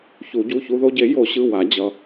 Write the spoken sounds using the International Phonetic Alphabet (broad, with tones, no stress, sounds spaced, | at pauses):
ç u˨˩˦ ɟ u˩˧˩ ç u˦ ð o˦ ɟ e˨˩˦ j o˨˩˦ ɕ ɯ˩˧˩ w a˨˩˦ d͡ʑ ʌ˩˧˩